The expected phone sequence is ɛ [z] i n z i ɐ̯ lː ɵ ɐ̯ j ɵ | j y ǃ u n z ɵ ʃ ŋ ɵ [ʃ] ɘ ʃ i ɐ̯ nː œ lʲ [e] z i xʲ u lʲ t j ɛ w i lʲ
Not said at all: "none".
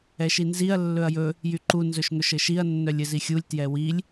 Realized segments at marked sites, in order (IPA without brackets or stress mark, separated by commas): ʃ, ʃ, ɘ